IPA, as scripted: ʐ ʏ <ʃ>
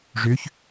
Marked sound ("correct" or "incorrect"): incorrect